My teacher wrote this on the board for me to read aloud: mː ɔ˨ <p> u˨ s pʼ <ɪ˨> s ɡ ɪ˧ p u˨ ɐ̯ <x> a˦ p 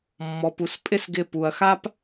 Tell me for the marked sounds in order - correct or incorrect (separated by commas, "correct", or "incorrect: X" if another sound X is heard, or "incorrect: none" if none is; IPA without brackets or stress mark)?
correct, incorrect: ɪ˦, correct